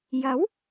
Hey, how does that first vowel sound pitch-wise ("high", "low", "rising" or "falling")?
rising